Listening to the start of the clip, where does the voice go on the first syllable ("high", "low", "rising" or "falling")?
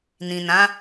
low